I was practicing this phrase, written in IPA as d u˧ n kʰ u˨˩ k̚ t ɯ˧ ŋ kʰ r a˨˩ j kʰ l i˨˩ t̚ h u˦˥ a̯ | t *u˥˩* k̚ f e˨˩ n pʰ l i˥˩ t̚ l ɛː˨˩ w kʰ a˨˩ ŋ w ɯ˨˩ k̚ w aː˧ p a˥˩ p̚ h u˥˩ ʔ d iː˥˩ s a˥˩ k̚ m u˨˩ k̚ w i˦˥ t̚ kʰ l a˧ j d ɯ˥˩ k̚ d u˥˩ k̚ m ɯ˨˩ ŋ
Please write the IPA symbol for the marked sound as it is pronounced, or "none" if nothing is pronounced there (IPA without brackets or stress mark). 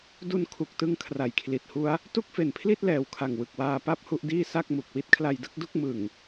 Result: u˥˩